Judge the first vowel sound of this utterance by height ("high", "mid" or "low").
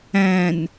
low